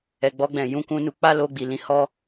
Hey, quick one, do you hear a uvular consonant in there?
no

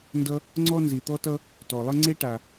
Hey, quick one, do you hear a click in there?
yes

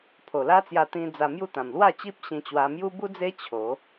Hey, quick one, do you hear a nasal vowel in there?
yes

